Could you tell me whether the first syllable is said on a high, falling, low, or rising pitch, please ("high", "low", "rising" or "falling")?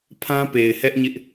high